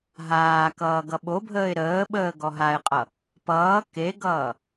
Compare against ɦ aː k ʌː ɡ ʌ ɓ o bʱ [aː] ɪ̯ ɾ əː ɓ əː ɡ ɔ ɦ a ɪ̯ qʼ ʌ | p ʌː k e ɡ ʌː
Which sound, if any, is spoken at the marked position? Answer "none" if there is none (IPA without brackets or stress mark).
əː